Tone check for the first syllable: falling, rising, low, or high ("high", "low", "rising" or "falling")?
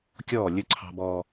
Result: falling